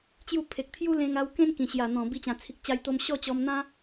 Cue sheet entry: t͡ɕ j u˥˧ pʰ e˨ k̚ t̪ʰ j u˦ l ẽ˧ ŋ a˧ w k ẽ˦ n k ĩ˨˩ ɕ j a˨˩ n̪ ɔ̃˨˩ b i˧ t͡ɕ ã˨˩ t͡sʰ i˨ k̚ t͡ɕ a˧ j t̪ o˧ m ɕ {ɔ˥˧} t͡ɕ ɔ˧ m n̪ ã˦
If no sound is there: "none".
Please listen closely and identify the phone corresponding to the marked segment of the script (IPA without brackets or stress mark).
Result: ɔ˥˧